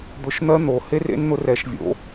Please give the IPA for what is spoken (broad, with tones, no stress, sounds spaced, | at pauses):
d̪ ʊ˨˥ ʃ n̪ ɜ˦˥ n̪ o˨˩˦ h e˦˥ r ḛ˦˥ n n̪ ʊ˨˥ r ɛ˨˥ ʃ vʲ o̰˨˥